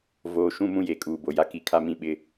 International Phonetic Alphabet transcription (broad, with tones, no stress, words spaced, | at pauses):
voː˨ʃũ˦˨ mũ˦je˨kʼuː˨ bo˨ja˦ ki˨ kʰa˦mĩ˦ɓɪ˦